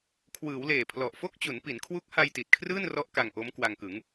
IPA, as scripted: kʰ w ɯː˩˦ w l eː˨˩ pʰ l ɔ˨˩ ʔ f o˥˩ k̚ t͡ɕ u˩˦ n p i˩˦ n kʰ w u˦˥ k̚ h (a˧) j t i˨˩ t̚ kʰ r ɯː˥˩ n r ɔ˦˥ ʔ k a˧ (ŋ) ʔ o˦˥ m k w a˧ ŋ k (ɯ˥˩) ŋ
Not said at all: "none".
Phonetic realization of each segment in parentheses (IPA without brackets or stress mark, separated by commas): a˧, ŋ, ɯ˩˦